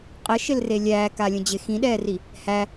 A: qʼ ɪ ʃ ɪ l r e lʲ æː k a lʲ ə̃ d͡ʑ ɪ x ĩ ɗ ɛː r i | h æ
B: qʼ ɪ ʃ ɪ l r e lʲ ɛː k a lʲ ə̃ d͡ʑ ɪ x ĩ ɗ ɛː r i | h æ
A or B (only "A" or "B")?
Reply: A